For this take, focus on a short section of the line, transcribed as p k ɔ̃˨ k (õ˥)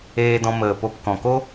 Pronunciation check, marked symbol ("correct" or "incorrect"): incorrect